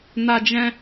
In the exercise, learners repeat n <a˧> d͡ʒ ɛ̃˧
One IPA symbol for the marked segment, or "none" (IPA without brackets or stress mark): a˧